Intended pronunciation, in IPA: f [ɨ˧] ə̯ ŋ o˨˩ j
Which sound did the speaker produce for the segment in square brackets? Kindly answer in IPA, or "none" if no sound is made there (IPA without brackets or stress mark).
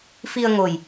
i˧